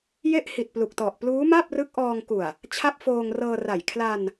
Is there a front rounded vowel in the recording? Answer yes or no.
no